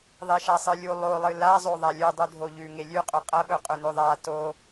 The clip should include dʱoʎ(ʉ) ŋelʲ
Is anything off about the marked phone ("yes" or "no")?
no